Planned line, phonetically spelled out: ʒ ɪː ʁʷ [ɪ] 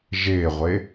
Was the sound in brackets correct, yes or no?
yes